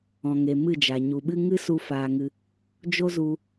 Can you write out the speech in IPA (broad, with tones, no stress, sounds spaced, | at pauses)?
ɔ̃˨ ŋ e˨ m ɨ˦˨ d͡ʒ a˨ ɲ u˨ ɓ ɨ˦ ŋ ɨ˦ s u˧ f aː˧ ŋ ɨ˧ | d͡ʒ o˦ z u˧